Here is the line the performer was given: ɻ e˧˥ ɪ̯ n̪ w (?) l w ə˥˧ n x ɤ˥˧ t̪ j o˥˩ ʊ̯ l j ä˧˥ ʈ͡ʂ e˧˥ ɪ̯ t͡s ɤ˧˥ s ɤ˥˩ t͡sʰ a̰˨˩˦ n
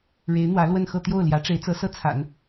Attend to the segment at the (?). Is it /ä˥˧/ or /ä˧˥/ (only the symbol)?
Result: ä˧˥